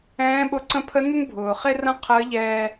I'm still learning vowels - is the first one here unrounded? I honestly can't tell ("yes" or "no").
yes